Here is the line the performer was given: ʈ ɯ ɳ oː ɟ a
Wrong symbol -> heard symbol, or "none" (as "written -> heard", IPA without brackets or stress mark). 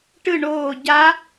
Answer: none